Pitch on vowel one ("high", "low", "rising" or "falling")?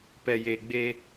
low